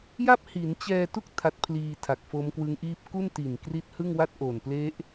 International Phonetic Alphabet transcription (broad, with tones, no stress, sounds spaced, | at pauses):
j a˥˩ p̚ h i˩˦ n t͡ɕ ɛː˧ t u˥˩ k̚ tʰ a˦˥ t̚ pʰ l iː˧ tʰ a˨˩ k̚ f o˦˥ m k w ɯ˦˥ ŋ ʔ iː˥˩ p̚ k u˥˩ n t i˨˩ n k r i˦˥ t̚ h ɯ˥˩ ŋ w a˥˩ t̚ ʔ o˨˩ n p l e˦˥ ʔ